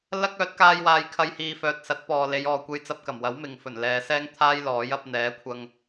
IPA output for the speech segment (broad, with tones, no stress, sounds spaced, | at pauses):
l ɐ˥ k̚ œː˨˥ t̚ k aː˧ j w aː˨ j kʰ ɐ˧ j h iː˨ f œː˨ t̚ s ɐ˨˥ t̚ p ɔː˨ l e˨˧ j ɔː˨ kʷ e˧ j t͡s ɐ˧ p̚ k ɐ˨˩ m w ɐ˨˥ w m ɪ˨ ŋ f ɵ˨˩ n l ɛː˨˧ s ɛː˥ ŋ t̪ʰ aː˥ j l ɔː˨˥ j ɐ˨˥ p̚ n̪ ɛː˨˥ kʷʰ ɐ˧ ŋ